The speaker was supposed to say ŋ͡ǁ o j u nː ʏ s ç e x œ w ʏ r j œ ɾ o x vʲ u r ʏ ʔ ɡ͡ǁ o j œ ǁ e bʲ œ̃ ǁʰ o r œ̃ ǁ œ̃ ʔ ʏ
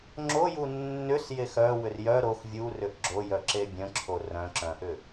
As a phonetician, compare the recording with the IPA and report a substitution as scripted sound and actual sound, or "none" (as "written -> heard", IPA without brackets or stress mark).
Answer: ç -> j